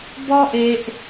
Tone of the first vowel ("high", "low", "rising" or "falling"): high